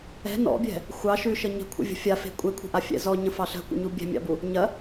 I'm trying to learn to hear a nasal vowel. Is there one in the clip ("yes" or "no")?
yes